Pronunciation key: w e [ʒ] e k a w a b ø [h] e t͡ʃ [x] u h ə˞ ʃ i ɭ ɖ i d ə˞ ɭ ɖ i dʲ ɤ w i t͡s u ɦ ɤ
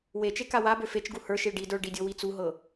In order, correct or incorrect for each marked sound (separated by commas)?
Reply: incorrect, incorrect, incorrect